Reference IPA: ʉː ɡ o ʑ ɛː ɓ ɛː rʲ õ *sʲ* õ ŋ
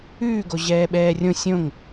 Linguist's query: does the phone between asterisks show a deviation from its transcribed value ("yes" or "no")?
no